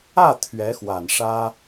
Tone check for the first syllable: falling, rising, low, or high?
falling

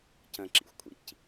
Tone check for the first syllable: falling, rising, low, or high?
low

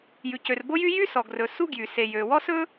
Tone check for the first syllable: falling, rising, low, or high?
low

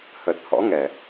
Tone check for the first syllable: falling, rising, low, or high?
low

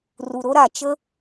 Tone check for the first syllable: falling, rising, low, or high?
low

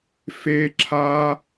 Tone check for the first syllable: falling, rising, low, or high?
high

